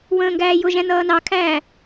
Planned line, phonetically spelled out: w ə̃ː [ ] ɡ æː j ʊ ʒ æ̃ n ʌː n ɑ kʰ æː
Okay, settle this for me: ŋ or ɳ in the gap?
ŋ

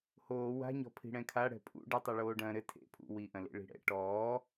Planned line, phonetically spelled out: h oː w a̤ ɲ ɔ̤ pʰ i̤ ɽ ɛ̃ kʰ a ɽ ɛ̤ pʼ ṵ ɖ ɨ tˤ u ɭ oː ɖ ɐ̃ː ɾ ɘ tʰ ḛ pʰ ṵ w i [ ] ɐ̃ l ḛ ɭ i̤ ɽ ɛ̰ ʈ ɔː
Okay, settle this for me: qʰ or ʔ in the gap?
ʔ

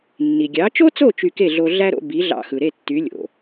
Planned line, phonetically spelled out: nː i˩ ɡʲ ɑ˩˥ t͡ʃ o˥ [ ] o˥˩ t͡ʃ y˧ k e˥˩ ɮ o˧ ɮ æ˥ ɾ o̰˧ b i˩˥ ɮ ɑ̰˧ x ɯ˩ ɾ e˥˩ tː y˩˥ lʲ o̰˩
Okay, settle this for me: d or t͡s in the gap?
t͡s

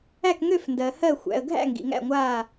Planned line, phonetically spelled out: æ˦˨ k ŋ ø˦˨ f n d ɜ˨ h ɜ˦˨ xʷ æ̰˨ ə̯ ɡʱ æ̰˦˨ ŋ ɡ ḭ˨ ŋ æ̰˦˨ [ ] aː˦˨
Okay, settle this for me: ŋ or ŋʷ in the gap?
ŋʷ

